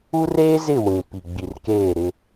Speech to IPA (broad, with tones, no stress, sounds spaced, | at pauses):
u˦ r eː˦ z ɪ˦˨ w ĩ˨ p i˨ ɡ͡b i˨ r k eː˦˨ ɾ ɪ˦